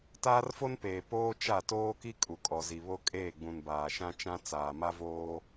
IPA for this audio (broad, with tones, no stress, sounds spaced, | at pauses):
t aː˦ r f o˦ n p eː˨ p oː˦ t͡ʃ a˦˨ t oː˦ k i˦ kʼ u˨ kʼ ɔ˨ z i˨ β o˦ kʼ eː˦˨ ɡ͡b ũ˨ n b aː˨ ʃ ã˦ t͡ʃ ã˦ t͡s aː˨ m a˦ v oː˦